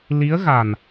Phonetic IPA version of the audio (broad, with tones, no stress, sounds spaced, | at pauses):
l i˧˥ ə̯ ɣ a˨˩ n